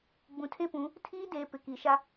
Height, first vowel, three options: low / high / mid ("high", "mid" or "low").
high